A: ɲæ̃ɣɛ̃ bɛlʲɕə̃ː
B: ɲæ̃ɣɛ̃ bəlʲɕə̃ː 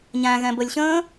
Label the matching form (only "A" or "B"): B